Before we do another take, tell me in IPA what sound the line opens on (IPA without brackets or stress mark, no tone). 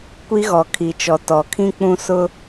kʷ